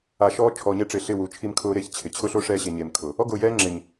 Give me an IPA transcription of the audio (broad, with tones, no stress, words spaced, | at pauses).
a˨ ʃɔː˦t͡ʃʰɔː˨ɲɛ˦ ʈ͡ʂɪː˨ɬɪ˦˨ wu˨˦t͡ʃʰi˦mkʰʊː˦ɾeː˦ç t͡ɕʰɪ˨ t͡ɕʰʊ˦ɬo˦ ʂɛː˦ɕe˨ɲeː˨m kʰʊ˨ | ɔ˦ɡʊː˨jɛː˦ ŋ͡ǁɪ˨ɲ